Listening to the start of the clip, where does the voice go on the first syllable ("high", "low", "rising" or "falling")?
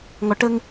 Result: low